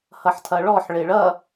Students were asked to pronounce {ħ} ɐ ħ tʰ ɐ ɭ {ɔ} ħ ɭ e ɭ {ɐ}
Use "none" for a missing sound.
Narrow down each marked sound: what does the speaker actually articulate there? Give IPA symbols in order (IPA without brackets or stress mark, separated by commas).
h, ɔ, ɐ